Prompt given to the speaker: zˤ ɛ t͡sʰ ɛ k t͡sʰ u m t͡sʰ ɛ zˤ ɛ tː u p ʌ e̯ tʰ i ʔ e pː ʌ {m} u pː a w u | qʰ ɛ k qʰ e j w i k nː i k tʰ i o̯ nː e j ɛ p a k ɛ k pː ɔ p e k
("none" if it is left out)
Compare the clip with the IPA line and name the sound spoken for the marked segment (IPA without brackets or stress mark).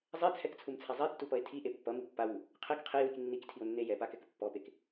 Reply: m